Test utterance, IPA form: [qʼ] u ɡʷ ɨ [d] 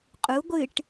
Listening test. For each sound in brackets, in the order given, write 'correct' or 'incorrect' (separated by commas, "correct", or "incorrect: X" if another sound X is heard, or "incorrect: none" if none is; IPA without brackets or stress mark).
correct, incorrect: ʈ